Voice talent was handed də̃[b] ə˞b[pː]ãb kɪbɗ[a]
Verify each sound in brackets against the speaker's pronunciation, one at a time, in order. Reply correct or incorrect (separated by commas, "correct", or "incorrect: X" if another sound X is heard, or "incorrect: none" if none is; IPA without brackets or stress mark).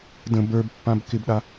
correct, correct, correct